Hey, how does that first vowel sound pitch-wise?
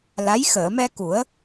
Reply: rising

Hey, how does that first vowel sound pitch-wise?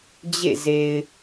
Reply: falling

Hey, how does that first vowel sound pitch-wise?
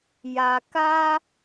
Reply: low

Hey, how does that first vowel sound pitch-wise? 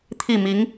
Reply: falling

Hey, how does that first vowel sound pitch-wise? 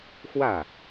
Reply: falling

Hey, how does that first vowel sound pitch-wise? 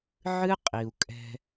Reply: high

